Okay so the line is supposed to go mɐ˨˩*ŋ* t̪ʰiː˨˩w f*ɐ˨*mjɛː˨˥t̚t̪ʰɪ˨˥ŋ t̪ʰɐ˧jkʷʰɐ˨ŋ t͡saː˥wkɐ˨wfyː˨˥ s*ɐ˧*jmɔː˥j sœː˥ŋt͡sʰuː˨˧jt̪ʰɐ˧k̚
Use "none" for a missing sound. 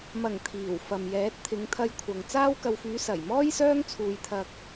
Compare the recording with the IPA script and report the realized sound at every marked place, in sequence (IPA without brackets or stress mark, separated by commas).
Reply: ŋ, ɐ˨, ɐ˨˩